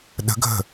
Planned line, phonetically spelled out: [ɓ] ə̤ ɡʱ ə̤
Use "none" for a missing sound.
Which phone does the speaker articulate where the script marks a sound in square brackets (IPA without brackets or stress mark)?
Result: ɗ